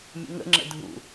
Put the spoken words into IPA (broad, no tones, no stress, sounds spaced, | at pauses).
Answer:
mʲ ə̰ ŋ ə̰ ŋ͡ǁ ə̰ dʱ ṵ